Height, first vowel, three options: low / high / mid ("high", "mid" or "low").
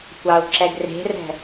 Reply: low